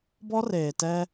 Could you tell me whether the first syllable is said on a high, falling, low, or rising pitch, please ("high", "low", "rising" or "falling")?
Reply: high